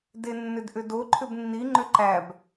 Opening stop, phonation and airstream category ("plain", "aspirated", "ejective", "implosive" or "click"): plain